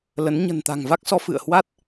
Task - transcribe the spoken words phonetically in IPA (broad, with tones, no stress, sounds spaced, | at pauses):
l ə˨˦ n ɲ ə̤˨˩ n t̪ a̤˨˩ ŋ v a˦˥ k̚ s ɔ˨˦ f ɨ̰˧˨ ə̯ h w a˦˥ t̚